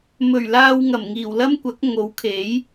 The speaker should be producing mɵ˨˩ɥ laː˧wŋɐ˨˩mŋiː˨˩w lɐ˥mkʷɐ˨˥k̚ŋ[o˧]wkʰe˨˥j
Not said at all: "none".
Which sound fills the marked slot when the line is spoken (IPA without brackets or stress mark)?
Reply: o˨˥